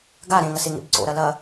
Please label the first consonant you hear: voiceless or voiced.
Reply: voiced